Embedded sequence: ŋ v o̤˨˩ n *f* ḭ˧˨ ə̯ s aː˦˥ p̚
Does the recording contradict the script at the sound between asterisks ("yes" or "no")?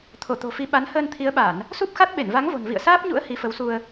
yes